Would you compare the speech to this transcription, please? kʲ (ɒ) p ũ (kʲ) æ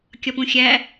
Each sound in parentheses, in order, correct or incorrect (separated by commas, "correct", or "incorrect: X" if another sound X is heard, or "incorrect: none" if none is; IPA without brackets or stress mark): correct, incorrect: xʲ